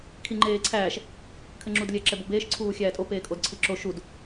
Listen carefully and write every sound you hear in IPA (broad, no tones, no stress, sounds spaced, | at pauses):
kʰ i ŋ͡ǃ eː ǀʰ æː ʃ | kʰ ɘ ŋ͡ǁ u d lʲ ɛ ǁ ɛ b o b eː ʃ ǀʰ uː xʲ æː tʼ o p eː kʼ o d ǀʰ i ǁ o ʃ u d